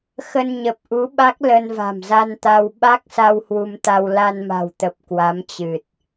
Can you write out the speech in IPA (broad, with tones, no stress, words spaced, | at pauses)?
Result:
xə˧nɲə˨˩p̚ʔu˨˦ɓa˦˥k̚ lə˧nva̤˨˩mza˧nt̪a˧w ɓa˦˥k̚sa˧w hwu˧mt̪a˧w la˧nma̤˨˩wt̪ə˨˩p̚ kwa˨˦mt͡ɕɨ˨˩t̚